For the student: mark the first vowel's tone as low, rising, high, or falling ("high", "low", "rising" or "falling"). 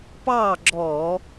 falling